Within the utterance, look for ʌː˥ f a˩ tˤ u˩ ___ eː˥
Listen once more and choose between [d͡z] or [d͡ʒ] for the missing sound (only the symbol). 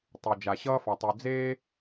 d͡z